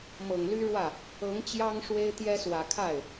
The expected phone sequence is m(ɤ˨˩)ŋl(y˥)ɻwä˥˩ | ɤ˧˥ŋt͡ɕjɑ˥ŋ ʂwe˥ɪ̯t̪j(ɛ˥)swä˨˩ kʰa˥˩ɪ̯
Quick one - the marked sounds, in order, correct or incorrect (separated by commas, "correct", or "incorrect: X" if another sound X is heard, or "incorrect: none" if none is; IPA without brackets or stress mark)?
correct, correct, correct